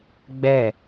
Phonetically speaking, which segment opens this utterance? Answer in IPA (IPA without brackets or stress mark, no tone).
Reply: ɡ͡b